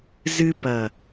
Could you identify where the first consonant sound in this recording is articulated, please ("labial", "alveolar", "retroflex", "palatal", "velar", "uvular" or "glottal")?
alveolar